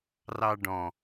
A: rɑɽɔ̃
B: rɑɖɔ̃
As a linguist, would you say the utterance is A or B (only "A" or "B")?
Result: B